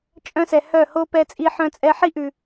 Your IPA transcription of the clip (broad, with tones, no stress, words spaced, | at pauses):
t͡ʃʼœ̃˦sɛ˨hœ˦˨ ho˦pɛ˧t͡sʼi˧ ħœ̃˧t͡sʼɛ˧ħi˦ʔʉ˨